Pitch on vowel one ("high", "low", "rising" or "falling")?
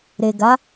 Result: low